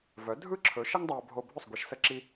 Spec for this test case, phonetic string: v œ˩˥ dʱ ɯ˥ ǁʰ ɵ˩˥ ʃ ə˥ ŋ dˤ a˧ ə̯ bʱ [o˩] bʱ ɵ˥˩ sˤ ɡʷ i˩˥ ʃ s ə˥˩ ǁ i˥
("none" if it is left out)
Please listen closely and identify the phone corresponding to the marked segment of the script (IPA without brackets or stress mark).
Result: o˧